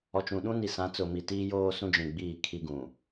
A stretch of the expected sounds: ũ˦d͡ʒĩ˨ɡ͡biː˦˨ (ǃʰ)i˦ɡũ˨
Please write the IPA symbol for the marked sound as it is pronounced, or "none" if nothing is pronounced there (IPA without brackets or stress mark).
kʰ